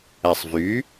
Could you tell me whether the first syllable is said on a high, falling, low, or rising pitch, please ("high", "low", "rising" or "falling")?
low